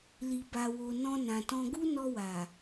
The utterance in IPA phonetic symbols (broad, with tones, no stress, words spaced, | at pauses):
li˨ba˨wo˨ nɔ̃˧nã˨tɔ̃˧ ɡu˦nɔ˧wa˨